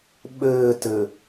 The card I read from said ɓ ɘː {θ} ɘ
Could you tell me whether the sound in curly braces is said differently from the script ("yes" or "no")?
yes